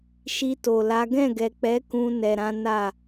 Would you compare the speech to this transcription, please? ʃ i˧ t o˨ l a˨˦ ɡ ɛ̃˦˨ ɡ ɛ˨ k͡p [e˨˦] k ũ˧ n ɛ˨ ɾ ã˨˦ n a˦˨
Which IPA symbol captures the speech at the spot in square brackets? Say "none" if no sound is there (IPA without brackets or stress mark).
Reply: ɛ˨˦